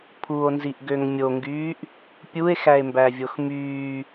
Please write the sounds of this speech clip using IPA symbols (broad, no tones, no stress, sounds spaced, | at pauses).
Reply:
pʰ u o̯ n z i ʔ ɡ ø ŋ mʲ o ŋ ɡ yː ʔ | pʲ u e̯ x æ e̯ m b æ vʲ o x m yː